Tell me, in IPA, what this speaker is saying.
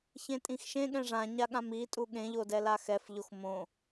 çẽtʼĩxʃẽ ɠɛ̃ʐãɲaɠãm itʼu ɠẽʎodɛla xɛfʎox mõ

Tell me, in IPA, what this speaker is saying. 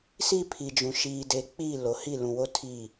si˦pʰi˨d͡ʒũ˨ ʃiː˨de˨˦k͡piː˦˨ lo˨hi˦˨ lũ˨wo˦tʰiː˦˨

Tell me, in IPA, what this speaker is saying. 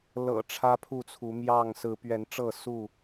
lɤ̰˨˩ ʈ͡ʂʰä˦pʰu˥˨t͡sʰu˨˦ mjɑ˥˨ŋ sɹ̩˨˦pɥɛ˨˦n ʈ͡ʂɤ˥˨su˥˨

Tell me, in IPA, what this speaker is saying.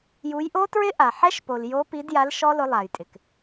ju˨˦jʔo˦˥tɹɪ˦˥ʔa˩ ħɛ˦˥ʃpo˩ljo˨˦ pi˨˦dja˨˦l ʃɔ˦˥lʊ˨˦lˠa˩jtʼɪ˩k

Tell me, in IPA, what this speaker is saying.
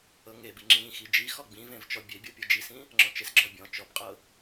ɤŋebi ŋ͡ǁĩ xid͡ʒixɔ ɡ͡bĩvẽv t͡ʃɔbʲebʲɤ pʲɤd͡ʒisĩ | ŋ͡ǁɔ̃t͡ʃesɡ͡ǁɔ bʲɔ̃ t͡ʃɔbqʼɤ

